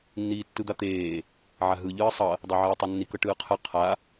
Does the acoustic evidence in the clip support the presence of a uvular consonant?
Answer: yes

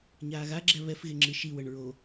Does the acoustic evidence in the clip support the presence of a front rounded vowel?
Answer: no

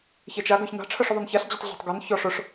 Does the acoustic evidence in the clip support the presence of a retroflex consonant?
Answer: yes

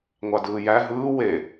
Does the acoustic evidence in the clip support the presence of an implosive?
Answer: no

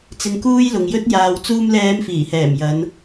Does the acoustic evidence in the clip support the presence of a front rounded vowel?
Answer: no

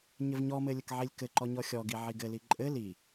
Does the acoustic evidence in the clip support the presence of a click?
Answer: yes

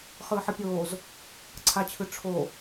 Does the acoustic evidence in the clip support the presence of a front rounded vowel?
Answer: no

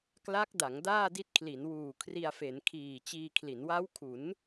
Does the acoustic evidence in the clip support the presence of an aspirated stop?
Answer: yes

